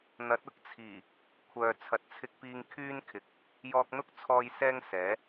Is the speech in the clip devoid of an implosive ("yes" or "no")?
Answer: yes